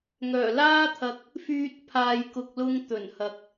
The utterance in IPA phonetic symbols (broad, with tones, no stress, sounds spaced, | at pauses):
ŋ œː˨˩ l aː˥ t̪ʰ ɐ˧ k̚ | f yː˨ t̚ pʰ aː˨ j k ʊ˨ k̚ l ʊ˧ ŋ t̪ ɵ˨˩ n h ɐ˨ k̚